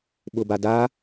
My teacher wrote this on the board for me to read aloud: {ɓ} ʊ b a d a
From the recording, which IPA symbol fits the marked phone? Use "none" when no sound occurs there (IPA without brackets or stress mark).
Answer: ɓ